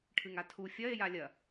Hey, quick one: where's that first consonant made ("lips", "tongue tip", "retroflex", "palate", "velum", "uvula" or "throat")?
retroflex